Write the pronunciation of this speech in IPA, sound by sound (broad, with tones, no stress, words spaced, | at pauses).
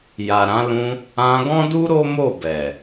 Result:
ja˨ɾã˨˦lũ˧ | ã˧ɡɔ̃˦du˦ ɾo˦mo˦˨bɛ˨